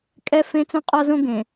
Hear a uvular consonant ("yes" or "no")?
yes